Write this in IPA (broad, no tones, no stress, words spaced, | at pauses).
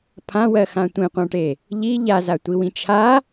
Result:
pʰãwɜxã tʷẽqʷãʈe | ʎi ʎazatʷiwĩ t͡ʃʰa